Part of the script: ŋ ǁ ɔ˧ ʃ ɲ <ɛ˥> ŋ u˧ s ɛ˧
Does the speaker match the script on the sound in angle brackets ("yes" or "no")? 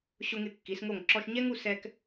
yes